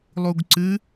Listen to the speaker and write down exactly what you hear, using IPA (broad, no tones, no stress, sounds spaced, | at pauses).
lˠ u ɡ ǀ ɨ